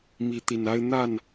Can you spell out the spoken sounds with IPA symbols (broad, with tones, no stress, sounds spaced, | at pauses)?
m i˨˦ t̪ i˨˩ n a˦ ɪ̯ n̪ a˥˨ n